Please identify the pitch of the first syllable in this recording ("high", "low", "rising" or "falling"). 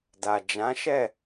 low